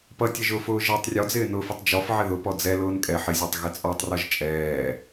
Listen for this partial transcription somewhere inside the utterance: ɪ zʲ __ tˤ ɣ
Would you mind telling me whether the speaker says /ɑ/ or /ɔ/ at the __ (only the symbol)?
ɑ